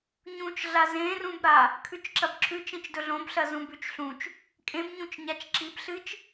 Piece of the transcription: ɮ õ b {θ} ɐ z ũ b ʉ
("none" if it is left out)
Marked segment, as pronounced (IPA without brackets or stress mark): ɬ